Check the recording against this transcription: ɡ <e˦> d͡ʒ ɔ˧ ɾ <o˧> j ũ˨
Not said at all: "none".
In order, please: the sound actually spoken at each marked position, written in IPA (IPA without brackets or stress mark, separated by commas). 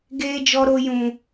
eː˦, o˧